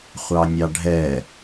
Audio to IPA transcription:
χʷ ɑ nʲ ɑ ɖʱ ɛ

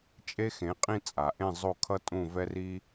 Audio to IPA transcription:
t͡ʃʼ e˥ x ẽ˩˥ qʼ ĩ˥˨ t͡sʼ a˩ ʔ ẽ˥˨ zˤ o˥˨ kʰ ʌ˥ tʼ ũ˥˨ v ɛ˥ r i˥

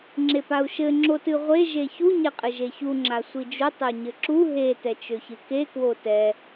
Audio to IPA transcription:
ŋ͡ǁ e p a u̯ ʃ ɘ ŋ͡ǁ o t ɨ ʁʷ e ʒ e ç u ɲ ɛ qʼ ɘ ʒ e ç u ŋ͡ǁ a sʷ i d͡ʒ u tˤ ø ɲ ɘ ǁ u ɦ e t ɛ t͡ʃ ø ç ɨ k e k w o t ɛ

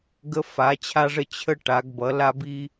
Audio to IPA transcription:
ɡ ə˦ f a˩˧ t͡ɕʰ a˦ ʐ ə˦ t͡ɕʰ ə˦ ʈ a˩˧ ɡ b ʌ˩˧ l a˦ b i˦

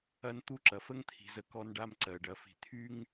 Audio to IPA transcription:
ɐ˦ n t̪ u˦ ǁ ɐ˨ f ə˦ ŋ t̪ʰ i̤˨ z ə˨ k ɔ˦ n ɖ a˦ m ǀ ɜ˨ ɖ ɐ˨ f i̤˨ t̪ʰ y˦ ŋ

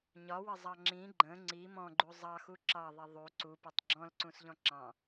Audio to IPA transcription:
ɲ ɒ w ə zˤ ɑ ŋ͡ǁ ĩ ɡ͡ǃ ə̃ ŋ͡ǀ i m ɔ̃ ɡ͡ǃ u zˤ ɑ x u ǁ ɑ ðˤ i ðˤ u ǀ u p ə tˤ ɡ͡ǁ ɔ̃ l ǀ ũ s ʎ ɔ̃ ǁ ɑ̃

